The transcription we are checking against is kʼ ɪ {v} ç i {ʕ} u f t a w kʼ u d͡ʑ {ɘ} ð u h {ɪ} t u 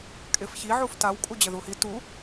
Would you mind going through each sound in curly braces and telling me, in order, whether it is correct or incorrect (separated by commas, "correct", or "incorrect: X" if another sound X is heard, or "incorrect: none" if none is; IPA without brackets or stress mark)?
incorrect: f, correct, correct, incorrect: i